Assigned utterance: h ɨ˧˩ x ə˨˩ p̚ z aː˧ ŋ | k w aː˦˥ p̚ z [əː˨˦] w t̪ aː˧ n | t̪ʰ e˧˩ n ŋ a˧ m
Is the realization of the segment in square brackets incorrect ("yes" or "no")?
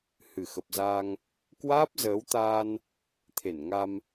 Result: no